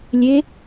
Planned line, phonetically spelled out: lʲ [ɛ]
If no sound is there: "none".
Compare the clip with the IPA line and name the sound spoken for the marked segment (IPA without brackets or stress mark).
e